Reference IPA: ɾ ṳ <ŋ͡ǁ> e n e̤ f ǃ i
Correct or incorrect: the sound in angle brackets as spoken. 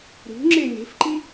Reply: correct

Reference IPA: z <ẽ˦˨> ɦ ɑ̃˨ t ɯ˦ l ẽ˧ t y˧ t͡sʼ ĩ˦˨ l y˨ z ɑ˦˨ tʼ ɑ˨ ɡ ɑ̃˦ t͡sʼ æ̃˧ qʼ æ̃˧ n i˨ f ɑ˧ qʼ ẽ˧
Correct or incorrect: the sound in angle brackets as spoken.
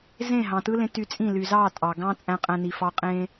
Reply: correct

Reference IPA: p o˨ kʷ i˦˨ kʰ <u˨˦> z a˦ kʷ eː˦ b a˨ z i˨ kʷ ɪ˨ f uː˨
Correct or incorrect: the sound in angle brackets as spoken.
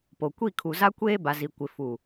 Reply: incorrect: u˨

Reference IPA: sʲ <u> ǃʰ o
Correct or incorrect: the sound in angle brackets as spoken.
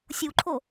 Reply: correct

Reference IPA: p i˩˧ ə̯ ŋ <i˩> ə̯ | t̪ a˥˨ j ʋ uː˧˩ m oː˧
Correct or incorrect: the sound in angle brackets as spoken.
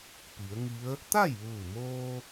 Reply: incorrect: i˧˥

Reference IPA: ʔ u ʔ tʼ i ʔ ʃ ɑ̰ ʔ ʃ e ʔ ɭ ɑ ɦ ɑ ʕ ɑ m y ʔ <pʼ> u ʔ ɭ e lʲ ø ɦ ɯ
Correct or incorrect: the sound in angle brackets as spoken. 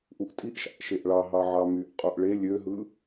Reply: incorrect: qʼ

